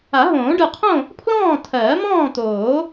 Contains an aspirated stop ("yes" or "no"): yes